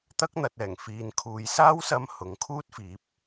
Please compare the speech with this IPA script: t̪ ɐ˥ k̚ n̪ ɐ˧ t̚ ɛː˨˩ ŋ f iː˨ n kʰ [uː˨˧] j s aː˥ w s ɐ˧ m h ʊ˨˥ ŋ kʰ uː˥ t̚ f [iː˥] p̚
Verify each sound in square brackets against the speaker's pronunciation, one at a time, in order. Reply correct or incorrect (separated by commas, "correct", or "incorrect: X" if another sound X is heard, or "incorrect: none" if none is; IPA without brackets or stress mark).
correct, incorrect: iː˨˥